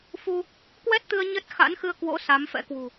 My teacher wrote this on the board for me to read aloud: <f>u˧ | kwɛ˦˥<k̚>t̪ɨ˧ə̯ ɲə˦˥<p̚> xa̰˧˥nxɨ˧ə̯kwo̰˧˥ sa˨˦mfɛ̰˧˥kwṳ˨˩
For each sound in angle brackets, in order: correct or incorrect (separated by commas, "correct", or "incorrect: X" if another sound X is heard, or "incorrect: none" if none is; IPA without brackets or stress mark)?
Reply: correct, incorrect: t̚, incorrect: t̚